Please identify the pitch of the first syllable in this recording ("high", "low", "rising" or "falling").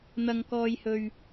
high